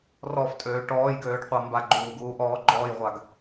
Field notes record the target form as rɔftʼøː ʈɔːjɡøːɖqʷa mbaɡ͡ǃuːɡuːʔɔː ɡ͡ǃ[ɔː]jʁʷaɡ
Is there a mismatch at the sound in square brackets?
no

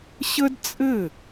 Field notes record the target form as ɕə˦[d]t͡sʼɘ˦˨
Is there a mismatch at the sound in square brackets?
no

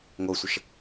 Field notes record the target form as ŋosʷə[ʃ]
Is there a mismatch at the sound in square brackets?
no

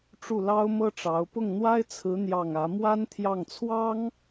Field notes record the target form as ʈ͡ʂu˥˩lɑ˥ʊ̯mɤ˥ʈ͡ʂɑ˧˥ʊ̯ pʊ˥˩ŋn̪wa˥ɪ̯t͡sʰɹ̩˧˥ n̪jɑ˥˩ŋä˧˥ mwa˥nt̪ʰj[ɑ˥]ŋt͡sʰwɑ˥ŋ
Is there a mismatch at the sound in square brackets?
yes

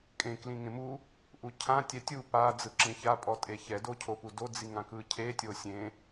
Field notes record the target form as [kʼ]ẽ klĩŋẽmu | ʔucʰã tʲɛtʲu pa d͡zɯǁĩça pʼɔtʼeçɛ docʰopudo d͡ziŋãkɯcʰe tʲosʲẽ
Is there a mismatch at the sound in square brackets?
no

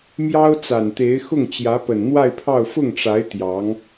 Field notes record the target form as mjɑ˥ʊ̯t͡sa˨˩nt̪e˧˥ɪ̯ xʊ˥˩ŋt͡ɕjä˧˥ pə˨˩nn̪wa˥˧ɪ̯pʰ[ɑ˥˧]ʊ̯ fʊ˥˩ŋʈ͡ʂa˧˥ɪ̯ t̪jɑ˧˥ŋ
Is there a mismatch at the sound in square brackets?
no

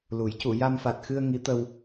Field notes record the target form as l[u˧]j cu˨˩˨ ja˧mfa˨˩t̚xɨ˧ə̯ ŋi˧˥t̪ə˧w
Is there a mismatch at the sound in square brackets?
yes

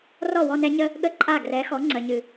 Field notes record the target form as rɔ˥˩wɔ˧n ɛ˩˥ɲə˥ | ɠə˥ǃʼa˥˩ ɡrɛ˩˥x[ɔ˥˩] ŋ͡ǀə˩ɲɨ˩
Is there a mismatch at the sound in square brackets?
yes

